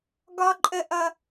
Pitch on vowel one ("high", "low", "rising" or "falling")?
high